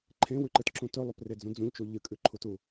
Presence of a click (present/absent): present